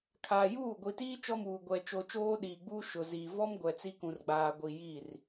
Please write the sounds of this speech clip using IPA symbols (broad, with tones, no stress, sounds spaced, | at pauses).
kʰ aː˨ j uː˦˨ ɡʷ i˨ t iː˦ t͡ʃ ɔ˦ m uː˨ ɡʷ ɛ˦ t͡ʃ o˦ t͡ʃ oː˦ ɗ iː˨ ɡ͡b uː˦ ʃ ʊ˨ z iː˨ v ɔ˦ m ɡʷ ɛ˨ t͡s i˦ k ũ˨ r ɡ͡b aː˨ ɡʷ i˨ j i˦˨ r